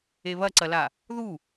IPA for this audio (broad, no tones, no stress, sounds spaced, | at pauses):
e β ɐ ǀ ɐ l a | ð u